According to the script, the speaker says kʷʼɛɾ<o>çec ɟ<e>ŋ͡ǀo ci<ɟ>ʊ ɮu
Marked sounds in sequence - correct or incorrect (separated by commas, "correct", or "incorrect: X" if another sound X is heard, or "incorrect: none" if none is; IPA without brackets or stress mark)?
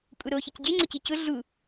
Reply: correct, correct, incorrect: c